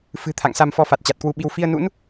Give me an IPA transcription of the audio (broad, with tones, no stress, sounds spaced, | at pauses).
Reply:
f ɨ̤˨˩ t̪ʰ a̰˧˨ ŋ s a˧ m f ɔ˧ f a˨˩ t̚ t͡ɕ a˨˩ t̚ k w u˧ ɓ i˧ w f i˧ ə̯ n ṵ˧˥ n